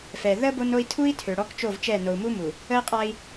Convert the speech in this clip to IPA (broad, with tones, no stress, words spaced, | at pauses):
fɛ˨ ðə˦ bo˦no˦i̯ tʰu˦i̯ tʰø˨ɽɔ˦kt͡ʃo˦˨vt͡ʃɛ˦˨ no˨u̯mu˦mu˨ | ə˦i̯qʼa˦i̯